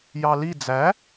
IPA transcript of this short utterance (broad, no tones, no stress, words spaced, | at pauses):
jɑli d͡zæ